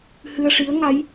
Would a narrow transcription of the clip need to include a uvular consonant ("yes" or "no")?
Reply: no